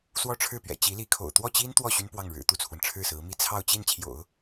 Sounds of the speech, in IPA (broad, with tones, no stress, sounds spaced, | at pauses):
s w ɔ˥˧ ʈ͡ʂʰ ɻ̩˥˩ p ɥ ɛ̰˨˩ t͡ɕ i˧˥ l i˧˥ kʰ o̰˨˩ ʊ̯ t̪ w ɔ˥˩ t͡ɕ i˥ n t̪ w ɔ˥˩ ɕ y˥ n p w ɑ˥˩ ŋ ɻ ɻ̩˨˩ t̪ u˥˩ t͡sʰ w ə˩ n ʈ͡ʂʰ ɻ̩˥˩ s ɹ̩˧˥ m i˥ t͡sʰ ɑ˥˧ ʊ̯ t͡ɕ i˥˩ n t͡ɕʰ j o̰˨˩˦ ʊ̯